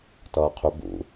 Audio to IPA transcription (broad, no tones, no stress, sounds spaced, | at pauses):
t ʌː qʰ ʏ b ṵ